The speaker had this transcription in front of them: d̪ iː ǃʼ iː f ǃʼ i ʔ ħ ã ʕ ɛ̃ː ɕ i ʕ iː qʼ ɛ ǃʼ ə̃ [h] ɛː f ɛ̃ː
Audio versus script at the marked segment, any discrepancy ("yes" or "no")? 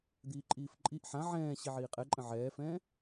yes